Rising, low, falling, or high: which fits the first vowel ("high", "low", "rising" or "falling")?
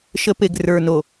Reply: high